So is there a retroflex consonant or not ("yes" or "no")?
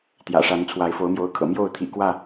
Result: yes